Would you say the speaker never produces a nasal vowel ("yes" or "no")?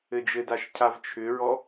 yes